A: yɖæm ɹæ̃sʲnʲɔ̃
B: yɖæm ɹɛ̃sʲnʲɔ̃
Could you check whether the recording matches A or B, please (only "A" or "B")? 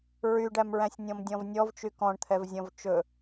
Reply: A